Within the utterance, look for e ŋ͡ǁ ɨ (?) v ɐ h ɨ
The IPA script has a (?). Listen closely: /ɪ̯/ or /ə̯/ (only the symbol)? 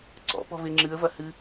ə̯